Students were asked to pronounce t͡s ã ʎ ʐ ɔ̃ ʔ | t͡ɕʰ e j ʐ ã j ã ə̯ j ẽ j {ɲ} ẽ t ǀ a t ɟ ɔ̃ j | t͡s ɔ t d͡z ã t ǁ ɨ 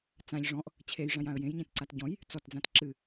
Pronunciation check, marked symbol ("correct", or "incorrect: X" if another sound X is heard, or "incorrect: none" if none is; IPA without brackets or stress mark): correct